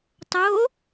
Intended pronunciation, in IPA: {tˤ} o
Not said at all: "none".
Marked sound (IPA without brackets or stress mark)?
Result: tˤ